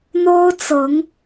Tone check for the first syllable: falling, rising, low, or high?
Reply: high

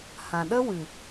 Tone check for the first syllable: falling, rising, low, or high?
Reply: low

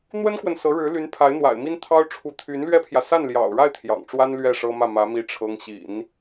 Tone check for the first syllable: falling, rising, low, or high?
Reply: high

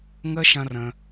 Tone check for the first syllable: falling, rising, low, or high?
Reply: high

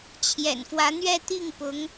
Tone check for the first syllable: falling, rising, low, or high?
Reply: low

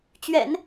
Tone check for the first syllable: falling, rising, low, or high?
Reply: low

